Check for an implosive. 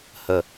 absent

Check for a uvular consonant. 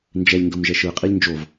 present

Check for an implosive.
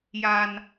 absent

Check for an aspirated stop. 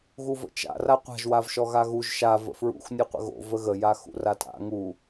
absent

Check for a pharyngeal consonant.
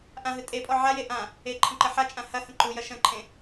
present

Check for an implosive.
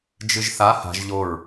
absent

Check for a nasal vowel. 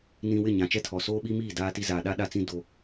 present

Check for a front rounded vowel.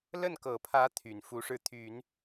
present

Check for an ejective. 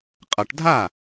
present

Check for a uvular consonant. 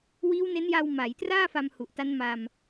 absent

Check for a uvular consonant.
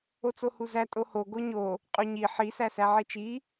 present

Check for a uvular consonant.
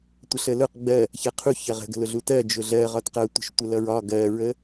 present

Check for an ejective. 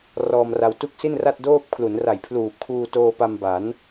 absent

